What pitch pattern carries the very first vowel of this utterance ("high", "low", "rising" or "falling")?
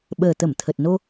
low